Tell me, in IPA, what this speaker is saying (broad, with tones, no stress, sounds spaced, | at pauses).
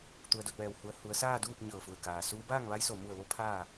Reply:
t̪ u˧ ə̯ d o˧ t̚ ʋ ɛː˧ w h u˧ ə̯ h u˩˧ ə̯ s aː˥˨ d uː˥˨ p̚ ɲ ɤː˧˩ f u˧˩ ə̯ k aː˩ s uː˧˥ b aː˥˨ ŋ ʋ a˧˥ j s o˩ m u˧˩ ə̯ ʋ o˧ pʰ aː˥˨